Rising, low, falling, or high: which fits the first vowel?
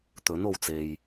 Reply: rising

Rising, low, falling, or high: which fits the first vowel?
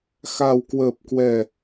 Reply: low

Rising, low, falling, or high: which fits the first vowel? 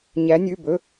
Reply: rising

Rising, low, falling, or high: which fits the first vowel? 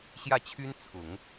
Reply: falling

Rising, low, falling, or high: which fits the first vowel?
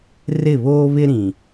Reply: falling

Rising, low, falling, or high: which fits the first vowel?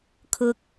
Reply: low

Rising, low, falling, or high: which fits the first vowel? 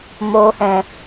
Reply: low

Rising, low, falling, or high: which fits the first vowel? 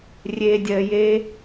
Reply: low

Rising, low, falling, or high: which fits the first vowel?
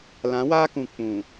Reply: rising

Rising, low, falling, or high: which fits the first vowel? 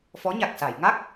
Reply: rising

